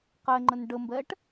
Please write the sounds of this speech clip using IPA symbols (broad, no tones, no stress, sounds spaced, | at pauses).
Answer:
q ɛ ŋ͡ǃ ə n ɖ ə m b ɛ ʈ